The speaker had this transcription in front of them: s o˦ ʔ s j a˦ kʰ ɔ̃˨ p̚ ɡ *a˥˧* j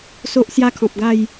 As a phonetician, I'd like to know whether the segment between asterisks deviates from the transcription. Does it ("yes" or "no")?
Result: no